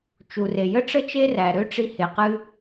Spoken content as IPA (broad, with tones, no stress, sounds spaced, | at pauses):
t͡ʃ u˩ r e˩ j ə˥ ʈ͡ʂ ə˥ t͡ʃ e˥ r æ˩ ɾ ø˥ ʈ͡ʂ i˧ h e˩ q ɨ˧